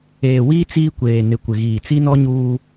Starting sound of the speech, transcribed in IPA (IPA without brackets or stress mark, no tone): eː